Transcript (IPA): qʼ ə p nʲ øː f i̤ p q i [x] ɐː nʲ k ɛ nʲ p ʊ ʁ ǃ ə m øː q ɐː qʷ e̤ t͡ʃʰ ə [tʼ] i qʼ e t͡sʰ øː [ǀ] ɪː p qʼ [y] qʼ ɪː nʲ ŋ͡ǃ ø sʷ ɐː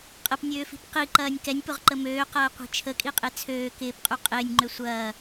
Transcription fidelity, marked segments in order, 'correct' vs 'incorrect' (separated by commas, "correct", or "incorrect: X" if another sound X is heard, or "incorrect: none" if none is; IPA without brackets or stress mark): incorrect: ǃ, incorrect: kʼ, incorrect: k, correct